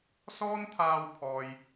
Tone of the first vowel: high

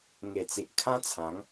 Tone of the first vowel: low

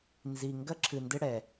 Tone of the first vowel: low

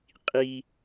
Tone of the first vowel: high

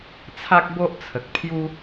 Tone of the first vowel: high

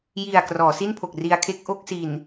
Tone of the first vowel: low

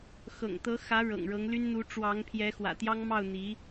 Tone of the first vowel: low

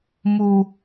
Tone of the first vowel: low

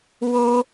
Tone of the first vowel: high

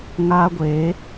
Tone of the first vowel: high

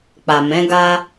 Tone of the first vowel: low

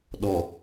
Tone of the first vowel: low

